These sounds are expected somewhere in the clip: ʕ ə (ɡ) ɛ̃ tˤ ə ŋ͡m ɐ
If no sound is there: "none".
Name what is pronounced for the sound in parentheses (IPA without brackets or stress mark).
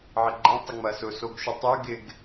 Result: ɡ͡ǃ